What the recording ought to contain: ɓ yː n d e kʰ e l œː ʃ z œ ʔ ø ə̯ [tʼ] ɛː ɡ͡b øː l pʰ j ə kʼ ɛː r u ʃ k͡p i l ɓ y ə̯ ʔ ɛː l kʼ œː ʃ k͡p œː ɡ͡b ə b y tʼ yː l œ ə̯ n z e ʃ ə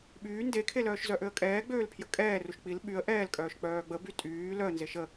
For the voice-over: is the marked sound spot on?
no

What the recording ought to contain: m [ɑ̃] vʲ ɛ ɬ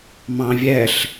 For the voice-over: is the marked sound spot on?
yes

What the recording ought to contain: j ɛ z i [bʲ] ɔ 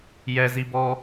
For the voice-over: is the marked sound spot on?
no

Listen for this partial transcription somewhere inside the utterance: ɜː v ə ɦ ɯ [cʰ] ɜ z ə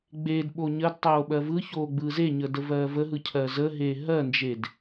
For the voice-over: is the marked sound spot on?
yes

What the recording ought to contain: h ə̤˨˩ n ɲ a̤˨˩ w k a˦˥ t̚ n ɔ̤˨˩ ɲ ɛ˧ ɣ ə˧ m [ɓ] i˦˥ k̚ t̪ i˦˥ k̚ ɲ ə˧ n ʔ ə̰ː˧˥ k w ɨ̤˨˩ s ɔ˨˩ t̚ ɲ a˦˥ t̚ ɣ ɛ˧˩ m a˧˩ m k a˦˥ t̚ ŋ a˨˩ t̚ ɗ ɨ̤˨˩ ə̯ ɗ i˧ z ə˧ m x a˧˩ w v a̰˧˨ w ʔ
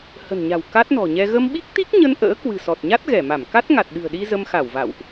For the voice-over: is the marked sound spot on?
yes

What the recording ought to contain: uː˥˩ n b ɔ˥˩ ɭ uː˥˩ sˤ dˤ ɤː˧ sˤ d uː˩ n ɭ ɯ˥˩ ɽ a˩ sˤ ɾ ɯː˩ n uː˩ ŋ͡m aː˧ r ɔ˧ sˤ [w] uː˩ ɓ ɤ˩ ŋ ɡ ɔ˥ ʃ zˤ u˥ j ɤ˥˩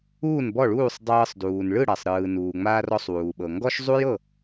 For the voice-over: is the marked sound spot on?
yes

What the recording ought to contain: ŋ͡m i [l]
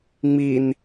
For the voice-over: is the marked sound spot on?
no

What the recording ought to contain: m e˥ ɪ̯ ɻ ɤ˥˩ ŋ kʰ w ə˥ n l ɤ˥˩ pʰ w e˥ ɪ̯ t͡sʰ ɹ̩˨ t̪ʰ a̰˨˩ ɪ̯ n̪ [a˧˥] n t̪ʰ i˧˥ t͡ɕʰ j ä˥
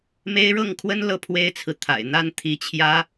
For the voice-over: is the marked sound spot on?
no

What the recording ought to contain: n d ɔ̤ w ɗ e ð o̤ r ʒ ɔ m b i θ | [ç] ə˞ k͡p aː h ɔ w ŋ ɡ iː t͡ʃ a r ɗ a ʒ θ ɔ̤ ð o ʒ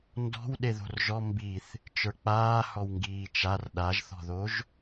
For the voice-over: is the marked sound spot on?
no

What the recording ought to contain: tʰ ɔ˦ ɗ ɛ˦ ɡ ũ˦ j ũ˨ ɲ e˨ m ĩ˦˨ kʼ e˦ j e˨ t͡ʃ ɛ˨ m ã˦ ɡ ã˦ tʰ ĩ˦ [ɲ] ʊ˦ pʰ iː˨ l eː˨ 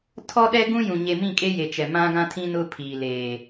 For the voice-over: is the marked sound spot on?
no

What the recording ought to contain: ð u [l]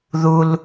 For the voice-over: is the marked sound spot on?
yes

